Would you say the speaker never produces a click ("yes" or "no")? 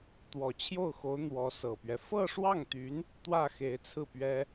yes